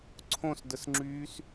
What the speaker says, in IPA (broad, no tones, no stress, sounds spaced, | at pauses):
ǀʰ õ s d ə s ŋ͡ǁ yː s